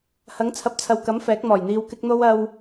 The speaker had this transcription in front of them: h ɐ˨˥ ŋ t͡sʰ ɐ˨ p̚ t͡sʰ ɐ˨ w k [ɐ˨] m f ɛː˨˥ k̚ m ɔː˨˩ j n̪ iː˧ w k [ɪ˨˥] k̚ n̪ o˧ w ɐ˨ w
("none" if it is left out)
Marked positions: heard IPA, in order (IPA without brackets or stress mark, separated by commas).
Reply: ɐ˨˥, ɪ˧